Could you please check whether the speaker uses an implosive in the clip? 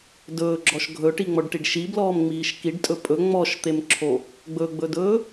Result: no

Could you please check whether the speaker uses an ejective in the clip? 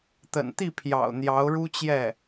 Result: no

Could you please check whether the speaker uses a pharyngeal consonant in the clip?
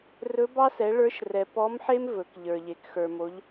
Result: yes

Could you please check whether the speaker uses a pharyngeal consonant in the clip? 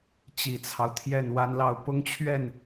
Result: no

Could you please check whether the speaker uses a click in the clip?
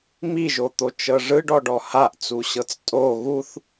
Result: no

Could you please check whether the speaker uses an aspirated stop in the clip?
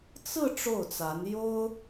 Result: no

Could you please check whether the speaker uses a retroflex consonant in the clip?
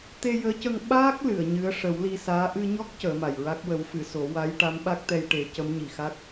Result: yes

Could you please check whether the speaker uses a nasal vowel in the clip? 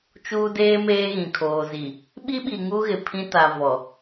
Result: yes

